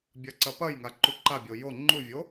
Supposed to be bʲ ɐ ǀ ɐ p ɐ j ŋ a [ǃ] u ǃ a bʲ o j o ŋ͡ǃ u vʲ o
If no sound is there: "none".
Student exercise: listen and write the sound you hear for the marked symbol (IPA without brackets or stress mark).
ǃ